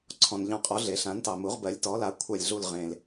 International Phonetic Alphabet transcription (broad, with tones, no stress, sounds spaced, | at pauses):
ǀʰ ɔ̃˩ n ʎ ɑ̃˧˩ qʼ ɔ˩˥ ɮ e˩ ɬ ã˩˥ n t ɑ˩ m u˩˥ ʁ b ɜ˩˥ lʲ t ɔ˩˥ l a˩˥ kʷʰ a˧˩ lʲ ɮ u˧˩ l ʁ ẽ˩ l